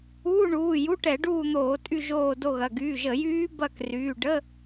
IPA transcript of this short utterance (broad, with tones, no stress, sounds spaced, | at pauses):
uː˧˥˧ ɳ uː˩˧˩ j u˧˥˧ ʈ ɛ˧˩˧ ɖ uː˦˨ n̪ oː˧˩˧ tʼ y˦˨ ʒ oː˦˨ d o˦˨ ɣ ɐ˩˧˩ ɡ yː˩˧˩ ʒ ə˧˩˧ j yː˦˥ b ɐ˦˨ k r yː˩˧˩ ɖ ə˧˥˧